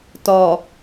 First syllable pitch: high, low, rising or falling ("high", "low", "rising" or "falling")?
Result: low